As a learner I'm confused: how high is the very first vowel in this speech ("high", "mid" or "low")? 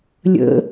mid